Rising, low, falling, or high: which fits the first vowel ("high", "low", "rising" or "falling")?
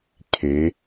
rising